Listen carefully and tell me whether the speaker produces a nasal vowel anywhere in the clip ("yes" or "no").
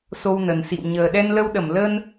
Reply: no